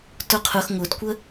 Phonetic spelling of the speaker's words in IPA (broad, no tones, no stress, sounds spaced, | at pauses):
t ʊ qʰ ʊ x ŋ ʊ d kʷ ə